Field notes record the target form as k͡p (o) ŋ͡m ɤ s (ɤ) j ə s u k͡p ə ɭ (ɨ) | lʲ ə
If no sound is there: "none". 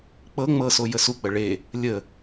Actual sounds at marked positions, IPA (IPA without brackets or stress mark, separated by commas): ɤ, o, e